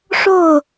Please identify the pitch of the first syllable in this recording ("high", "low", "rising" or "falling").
falling